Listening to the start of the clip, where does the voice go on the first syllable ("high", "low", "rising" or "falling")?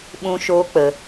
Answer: high